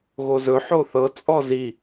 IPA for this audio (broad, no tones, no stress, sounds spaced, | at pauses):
ɣ o z ɵ ħ o θ ɤ t͡sʼ ɔ z i